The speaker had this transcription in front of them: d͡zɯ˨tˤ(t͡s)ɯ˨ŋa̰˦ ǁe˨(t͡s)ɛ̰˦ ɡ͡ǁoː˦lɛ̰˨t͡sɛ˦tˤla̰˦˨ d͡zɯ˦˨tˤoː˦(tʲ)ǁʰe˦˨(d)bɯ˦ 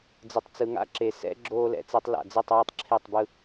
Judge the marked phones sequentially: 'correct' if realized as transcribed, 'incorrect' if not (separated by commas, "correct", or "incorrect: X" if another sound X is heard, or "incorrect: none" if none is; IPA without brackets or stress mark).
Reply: correct, incorrect: s, incorrect: tˤ, incorrect: tˤ